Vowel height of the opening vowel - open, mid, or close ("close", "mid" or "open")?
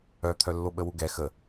mid